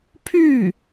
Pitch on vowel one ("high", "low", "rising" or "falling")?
falling